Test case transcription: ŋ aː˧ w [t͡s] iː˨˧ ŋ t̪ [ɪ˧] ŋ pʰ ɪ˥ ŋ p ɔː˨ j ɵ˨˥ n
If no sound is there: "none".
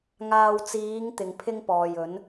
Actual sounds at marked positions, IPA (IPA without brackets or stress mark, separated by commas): t͡s, ɪ˧